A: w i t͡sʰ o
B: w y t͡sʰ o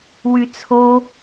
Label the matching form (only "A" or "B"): B